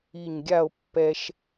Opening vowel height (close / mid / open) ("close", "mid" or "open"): close